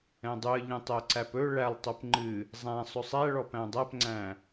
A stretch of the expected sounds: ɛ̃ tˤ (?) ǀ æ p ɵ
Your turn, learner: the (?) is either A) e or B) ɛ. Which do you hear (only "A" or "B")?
B